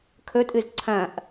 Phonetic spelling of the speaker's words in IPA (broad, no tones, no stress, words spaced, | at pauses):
kʰɵtʼɨz ǀʰɐ̃ʔ